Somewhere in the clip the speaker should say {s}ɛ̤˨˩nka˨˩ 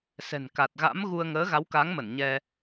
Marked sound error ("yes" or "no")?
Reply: no